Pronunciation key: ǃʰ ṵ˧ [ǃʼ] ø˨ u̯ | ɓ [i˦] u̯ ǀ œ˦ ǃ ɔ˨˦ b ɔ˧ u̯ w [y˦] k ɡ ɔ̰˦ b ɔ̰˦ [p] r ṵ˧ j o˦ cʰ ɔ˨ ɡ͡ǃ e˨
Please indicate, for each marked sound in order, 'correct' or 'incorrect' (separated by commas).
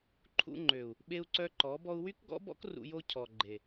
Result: incorrect, incorrect, correct, incorrect